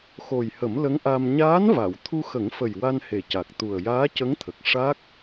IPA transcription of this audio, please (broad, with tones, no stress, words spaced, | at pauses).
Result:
xo˨˩jhə˨˩˦m lə˧˥ŋʔa˧m ɲaː˧˥nva˨˩˨w t̪ʰu˧xə˨˩˦ŋfə˨˩j wa˧nhe˨˩ca˨˩k̚ t̪u˨˩ə̯ jaː˧˥cə˧˥ŋt̪ʰə˨˩k̚ ʂa˦˥k̚